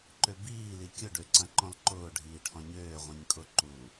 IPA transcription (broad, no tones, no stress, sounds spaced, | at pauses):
ǃ ø b iː l i kʲ ʊ ɖ ø ǀ ɐ̃ ǃ ɔ̃ l ǃ ʊː ɖʱ iː ʈʰ ɔ̃ ɲ øː ʁʷ ĩ ɲ kʼ ʊ ǃ u